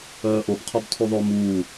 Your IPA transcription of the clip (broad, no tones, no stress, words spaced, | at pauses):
œːʔob qʰobtʰuðˤo muː